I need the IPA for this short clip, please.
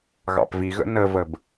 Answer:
ɣɑ̰pviɣə̰ nəvəb

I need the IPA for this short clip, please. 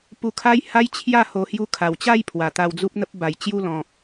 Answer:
pu˧kʰa˦j ha˦j t͡ɕʰja˥˧ ho˧hju˦ kʰa˨˩wt͡ɕa˥˧jpʰwa˨˩ t̪a˧wd͡zu˦p̚n̪ə˦p̚ ba˨˩jt͡ɕju˥˧ lɔ̃˨k̚

